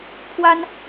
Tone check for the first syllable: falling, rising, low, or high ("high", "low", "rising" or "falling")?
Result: high